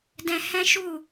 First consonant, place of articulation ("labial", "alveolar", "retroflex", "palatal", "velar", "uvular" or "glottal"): alveolar